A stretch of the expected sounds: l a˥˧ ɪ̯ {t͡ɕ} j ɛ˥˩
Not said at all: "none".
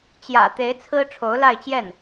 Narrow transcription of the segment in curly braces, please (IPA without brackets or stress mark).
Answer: t͡ɕ